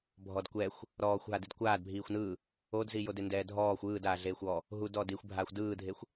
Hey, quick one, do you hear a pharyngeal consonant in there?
no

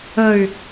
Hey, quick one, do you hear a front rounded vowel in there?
yes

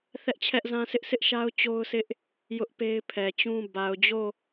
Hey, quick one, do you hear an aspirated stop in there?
yes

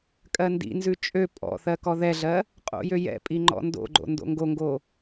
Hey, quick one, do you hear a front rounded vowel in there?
yes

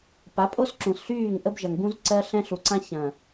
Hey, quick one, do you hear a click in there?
yes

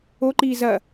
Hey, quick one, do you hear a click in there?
yes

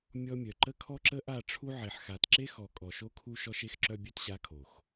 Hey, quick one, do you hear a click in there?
yes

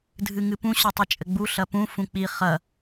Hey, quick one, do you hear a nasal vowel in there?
yes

